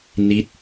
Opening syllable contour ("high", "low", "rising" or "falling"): rising